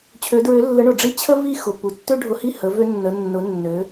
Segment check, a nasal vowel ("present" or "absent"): absent